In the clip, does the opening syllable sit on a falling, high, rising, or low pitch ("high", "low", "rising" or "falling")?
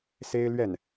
high